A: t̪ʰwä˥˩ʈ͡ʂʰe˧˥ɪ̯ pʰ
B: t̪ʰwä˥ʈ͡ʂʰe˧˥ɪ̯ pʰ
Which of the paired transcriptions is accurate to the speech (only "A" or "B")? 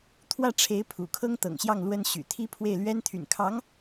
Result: A